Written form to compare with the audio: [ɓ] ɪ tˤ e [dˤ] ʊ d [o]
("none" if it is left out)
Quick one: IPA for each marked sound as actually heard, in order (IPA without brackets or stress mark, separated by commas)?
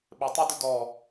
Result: ɓ, d, ɔ